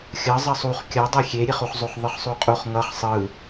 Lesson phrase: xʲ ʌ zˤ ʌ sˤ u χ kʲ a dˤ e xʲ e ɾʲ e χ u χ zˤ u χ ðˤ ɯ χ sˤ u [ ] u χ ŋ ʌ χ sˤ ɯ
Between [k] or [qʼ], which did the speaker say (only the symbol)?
qʼ